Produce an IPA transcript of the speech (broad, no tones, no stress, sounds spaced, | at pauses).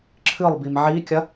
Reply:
ǁʰ ɨ lˠ b i m ʕ i kʲ ɐ